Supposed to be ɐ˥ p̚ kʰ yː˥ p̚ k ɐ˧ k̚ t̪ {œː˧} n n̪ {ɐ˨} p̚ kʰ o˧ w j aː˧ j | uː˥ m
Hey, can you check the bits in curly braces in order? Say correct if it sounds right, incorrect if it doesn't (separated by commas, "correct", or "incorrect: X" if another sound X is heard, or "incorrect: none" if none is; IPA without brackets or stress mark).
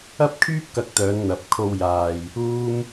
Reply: incorrect: œː˨˧, correct